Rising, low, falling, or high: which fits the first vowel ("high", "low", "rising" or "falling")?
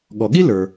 low